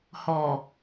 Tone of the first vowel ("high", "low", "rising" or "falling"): low